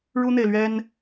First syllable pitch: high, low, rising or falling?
high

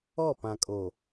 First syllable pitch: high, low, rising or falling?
falling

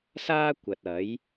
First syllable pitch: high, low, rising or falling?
high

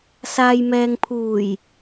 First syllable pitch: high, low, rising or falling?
low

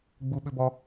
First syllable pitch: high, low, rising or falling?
high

